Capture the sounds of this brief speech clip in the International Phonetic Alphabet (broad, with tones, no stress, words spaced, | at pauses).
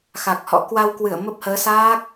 xa˨˩k̚hɔ̰˧˥ kwa˧w kwɨ˧˩ə̯ mə˦˥p̚həː˨˦ saː˦˥k̚